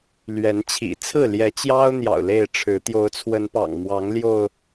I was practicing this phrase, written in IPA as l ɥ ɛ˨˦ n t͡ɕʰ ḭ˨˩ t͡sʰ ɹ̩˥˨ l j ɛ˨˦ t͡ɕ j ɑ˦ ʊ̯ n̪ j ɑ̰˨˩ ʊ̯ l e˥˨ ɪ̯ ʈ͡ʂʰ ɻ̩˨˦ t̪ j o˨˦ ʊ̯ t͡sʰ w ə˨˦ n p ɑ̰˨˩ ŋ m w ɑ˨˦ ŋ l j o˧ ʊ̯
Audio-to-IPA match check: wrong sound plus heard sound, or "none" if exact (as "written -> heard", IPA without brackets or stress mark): none